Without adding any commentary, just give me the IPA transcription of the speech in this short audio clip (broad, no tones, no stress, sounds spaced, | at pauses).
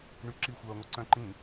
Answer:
ɳ y ǁ i xʷ œː ŋʷ e ǀ œ̃ ǃ ĩ